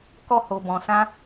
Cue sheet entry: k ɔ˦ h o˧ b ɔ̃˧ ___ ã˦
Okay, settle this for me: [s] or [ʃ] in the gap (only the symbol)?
s